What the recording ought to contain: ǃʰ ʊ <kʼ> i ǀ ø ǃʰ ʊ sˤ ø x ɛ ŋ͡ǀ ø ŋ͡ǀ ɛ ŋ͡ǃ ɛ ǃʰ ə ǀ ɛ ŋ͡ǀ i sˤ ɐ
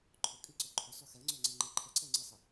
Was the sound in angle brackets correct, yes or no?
yes